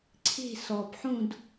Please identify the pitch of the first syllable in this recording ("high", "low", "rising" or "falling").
falling